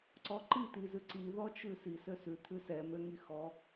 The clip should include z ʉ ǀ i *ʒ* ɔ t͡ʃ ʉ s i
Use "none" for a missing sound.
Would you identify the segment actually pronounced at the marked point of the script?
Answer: ð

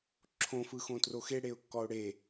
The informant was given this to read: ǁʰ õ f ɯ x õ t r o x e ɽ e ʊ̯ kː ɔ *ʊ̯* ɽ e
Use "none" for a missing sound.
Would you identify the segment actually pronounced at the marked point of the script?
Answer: ʊ̯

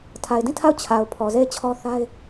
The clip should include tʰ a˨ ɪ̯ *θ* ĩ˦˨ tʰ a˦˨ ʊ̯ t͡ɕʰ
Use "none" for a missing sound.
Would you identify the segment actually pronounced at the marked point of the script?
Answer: d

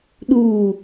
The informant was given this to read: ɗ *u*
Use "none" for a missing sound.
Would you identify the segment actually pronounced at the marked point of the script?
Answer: u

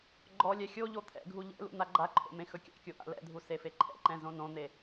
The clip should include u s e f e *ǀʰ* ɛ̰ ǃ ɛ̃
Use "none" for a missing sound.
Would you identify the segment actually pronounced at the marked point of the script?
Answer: ǃʰ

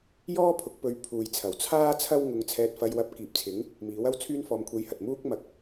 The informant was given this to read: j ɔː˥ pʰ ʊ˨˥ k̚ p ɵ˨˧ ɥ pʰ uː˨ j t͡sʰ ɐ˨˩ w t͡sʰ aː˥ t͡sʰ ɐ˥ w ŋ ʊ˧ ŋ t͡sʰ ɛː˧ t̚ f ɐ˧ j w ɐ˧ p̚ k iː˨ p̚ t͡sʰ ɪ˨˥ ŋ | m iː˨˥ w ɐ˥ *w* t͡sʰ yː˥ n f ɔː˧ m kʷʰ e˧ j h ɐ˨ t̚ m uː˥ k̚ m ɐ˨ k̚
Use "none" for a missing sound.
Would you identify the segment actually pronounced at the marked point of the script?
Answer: w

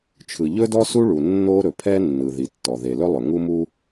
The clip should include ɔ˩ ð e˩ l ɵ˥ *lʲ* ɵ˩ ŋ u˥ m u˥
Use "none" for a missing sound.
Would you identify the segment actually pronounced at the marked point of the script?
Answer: lˠ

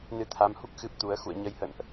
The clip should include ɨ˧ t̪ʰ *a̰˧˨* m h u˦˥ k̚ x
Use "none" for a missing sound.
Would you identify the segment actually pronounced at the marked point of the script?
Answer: a˨˦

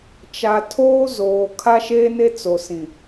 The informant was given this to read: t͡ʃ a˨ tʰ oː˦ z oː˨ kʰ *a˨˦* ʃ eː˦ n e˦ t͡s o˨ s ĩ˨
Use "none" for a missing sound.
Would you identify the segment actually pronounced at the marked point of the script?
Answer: a˦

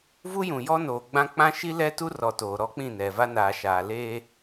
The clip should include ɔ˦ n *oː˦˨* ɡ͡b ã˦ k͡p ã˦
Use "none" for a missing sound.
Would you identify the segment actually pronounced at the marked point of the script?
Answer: oː˨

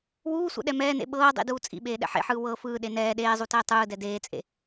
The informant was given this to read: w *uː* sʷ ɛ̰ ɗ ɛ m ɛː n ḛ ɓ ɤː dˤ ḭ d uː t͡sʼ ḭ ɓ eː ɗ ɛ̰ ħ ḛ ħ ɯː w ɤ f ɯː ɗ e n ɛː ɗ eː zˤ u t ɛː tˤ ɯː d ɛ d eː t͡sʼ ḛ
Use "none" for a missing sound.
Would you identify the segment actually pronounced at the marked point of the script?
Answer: uː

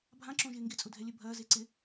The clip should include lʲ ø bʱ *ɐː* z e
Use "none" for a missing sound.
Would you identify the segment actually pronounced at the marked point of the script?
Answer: ɐː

